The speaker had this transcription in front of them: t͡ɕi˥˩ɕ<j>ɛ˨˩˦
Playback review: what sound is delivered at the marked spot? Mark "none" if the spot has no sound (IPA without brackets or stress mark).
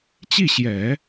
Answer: j